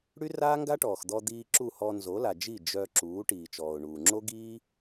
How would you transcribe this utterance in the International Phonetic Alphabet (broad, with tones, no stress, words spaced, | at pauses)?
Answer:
ɽy˦raː˦ŋɡa˦ʈɔː˨x d̪ɔ˧d̪iː˧ ǁu˦˨hɔ˧ nzo˨˦la˨d͡ʒi˦˨ d͡ʒœ˧ ǁuː˨˦ʈiː˨t͡ʃɔː˨ʊ̯ ɳuː˨ ŋ͡ǁo˦ɡiː˦